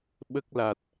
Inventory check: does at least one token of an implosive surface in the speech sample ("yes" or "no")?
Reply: yes